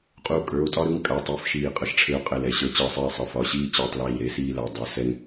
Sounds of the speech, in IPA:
qʼ u˧˩ kʼ ə˞˩˧˩ o̯ tʼ ɒ˧ ɾ ɯ˩˧˩ ŋ kʼ a˩˧˩ tˤ i˩˧˩ f ʃ iː˧˩ qʼ ʌ˧ ʃ ʈ͡ʂʰ e˧ o̯ qʼ ɛ˧˩ l ɛ˧˩ ɕ ə˞˧˩ t͡ɕ əː˧˩ sˤ iː˧˩ sˤ ʌ˩˧˩ f ɒ˩˧˩ ɕ iː˧ t͡ɕ əː˧ tˤ l iː˧˩ ɾ e˧ s iː˧ l a˩˧˩ dˤ ʌ˩˧˩ s ɛ˧ ŋ

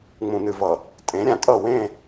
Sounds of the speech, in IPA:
ŋ͡m ũ˨ n ɨ˨ v ʌ˨ | tʼ ẽ˨˦ ɾʲ ã˨ tʼ ʌ˦˨ w ẽ˦˨

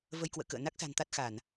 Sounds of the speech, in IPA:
v ə˧ j k w ə̰ː˧˨ k ə̰ː˧˨ n a˦˥ k̚ s a̤˨˩ n t̪ a˦˥ t̚ x a˧˩˨ n

